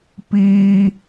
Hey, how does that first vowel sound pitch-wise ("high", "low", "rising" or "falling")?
high